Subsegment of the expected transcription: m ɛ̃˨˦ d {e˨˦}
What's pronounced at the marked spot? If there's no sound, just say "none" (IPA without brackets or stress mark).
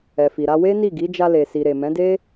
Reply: e˦